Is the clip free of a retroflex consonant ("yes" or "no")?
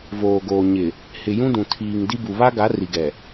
yes